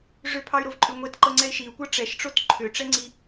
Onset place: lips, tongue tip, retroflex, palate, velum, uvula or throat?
retroflex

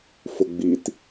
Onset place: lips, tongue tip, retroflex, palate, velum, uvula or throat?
lips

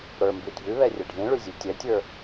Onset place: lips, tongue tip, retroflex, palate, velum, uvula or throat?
retroflex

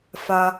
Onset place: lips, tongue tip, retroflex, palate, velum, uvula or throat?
lips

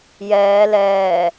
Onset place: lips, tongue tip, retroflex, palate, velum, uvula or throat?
palate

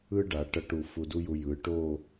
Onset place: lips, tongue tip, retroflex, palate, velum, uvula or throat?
retroflex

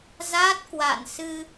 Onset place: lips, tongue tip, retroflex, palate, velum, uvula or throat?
tongue tip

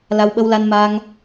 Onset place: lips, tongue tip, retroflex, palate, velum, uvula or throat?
tongue tip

